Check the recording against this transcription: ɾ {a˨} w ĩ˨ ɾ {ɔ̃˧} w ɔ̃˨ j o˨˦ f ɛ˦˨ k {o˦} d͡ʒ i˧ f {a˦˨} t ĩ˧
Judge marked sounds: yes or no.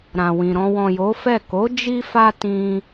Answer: no, yes, no, no

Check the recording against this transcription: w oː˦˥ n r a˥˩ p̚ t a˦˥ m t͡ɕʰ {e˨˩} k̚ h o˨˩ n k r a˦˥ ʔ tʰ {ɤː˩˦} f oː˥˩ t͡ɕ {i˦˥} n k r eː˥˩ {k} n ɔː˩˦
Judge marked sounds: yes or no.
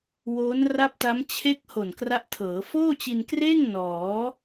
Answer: no, yes, no, no

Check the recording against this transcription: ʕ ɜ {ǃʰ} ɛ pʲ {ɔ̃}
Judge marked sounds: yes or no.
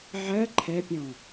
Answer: yes, yes

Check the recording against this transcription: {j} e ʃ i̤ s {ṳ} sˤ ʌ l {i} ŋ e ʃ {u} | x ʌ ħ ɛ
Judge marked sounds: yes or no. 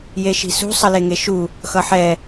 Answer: yes, yes, no, yes

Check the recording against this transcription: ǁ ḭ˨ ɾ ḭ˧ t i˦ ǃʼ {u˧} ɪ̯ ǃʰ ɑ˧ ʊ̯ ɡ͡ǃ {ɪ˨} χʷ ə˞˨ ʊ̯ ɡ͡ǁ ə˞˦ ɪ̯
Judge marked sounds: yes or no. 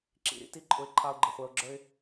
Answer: no, yes

